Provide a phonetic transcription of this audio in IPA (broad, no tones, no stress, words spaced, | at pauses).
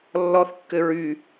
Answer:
lːɔθkːɘ ɹy